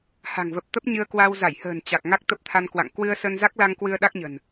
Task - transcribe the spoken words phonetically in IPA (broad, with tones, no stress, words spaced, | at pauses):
ha̤˨˩ŋvə˨˩p̚t̪ə˦˥p̚ ɲɨ˧ə̯kwa˧w za˧˩jhə̤ː˨˩n t͡ɕa˨˩k̚ ŋa˦˥k̚t̪ə˦˥p̚t̪ʰa˧n kwa̰˧˨ŋ kwɨ˧ə̯ sə˧nza˦˥k̚la˧ŋ kwɨ˧ə̯ɗa˦˥k̚ɲə̤˨˩n